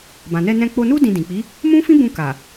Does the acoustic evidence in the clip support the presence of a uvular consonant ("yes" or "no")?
no